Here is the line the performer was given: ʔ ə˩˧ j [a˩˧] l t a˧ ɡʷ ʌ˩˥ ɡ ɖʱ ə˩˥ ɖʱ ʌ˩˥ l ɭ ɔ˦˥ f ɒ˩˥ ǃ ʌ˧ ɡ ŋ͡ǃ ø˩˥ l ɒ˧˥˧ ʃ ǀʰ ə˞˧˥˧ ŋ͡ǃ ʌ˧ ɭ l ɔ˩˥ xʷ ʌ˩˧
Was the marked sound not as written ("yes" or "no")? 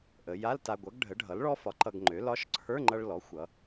yes